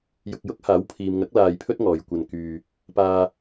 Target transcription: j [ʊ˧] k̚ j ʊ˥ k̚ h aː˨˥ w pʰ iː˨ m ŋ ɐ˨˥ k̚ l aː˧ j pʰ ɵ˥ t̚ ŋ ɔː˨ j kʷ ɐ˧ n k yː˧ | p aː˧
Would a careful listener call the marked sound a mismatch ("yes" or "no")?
no